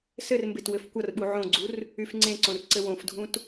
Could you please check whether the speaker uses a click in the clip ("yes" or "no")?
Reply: yes